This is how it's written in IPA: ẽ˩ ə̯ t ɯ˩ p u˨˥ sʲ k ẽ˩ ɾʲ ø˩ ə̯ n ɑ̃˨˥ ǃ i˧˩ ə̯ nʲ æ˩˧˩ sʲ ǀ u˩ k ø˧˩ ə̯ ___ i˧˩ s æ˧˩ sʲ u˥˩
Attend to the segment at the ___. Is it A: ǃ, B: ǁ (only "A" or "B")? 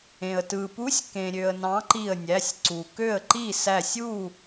A